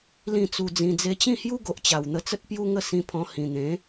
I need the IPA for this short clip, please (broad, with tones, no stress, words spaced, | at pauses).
lĩ˥˧t͡su˧d͡zĩ˧ d͡ze˧t͡ɕĩ˥˧hju˦ ɡo˨ʔt͡ɕa˨˩wn̪ə˧t͡sə˦t̚ pju˦ŋə˥˧sĩ˧pʰɔ̃˧ hĩ˨˩n̪ẽ˨˦